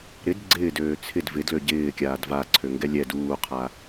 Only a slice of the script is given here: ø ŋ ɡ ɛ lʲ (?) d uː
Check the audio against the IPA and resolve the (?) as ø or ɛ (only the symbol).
ɛ